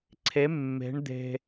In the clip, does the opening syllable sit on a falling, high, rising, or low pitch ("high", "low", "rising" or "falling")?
rising